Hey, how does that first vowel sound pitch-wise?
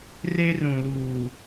high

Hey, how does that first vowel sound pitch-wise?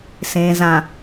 low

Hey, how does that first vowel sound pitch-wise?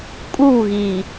falling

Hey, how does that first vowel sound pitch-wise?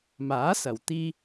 rising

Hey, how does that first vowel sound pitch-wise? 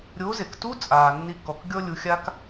rising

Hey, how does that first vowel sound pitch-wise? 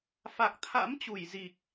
low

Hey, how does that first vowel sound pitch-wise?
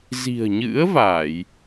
low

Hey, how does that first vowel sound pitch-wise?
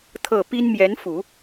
low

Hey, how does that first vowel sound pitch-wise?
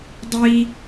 high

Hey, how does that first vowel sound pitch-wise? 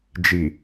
low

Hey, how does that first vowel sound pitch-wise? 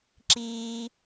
high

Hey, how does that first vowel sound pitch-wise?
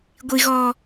high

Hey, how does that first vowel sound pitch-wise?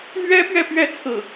high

